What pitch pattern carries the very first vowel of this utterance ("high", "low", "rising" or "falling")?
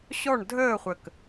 falling